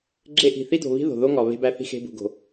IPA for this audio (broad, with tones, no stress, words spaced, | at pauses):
ɡ͡ǁe˦ʔi̤˨ θi˦do̤˨βi̤˦ ðo̤˨ðo˦ŋɒ˨ βe̤˦bæ˦θi̤˦ xe̤˦bṳ˨ɡo̤˨